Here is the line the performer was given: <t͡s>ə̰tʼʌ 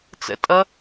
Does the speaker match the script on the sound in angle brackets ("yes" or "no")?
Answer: yes